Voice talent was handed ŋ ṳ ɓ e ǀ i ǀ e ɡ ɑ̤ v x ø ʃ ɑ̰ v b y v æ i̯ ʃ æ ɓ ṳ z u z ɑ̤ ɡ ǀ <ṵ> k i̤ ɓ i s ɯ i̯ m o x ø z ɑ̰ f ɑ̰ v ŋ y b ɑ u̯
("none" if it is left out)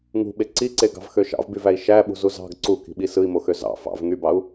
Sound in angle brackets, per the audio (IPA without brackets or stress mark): u